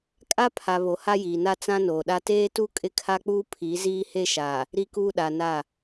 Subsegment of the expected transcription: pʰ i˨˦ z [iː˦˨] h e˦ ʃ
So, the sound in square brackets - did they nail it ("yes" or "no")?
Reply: no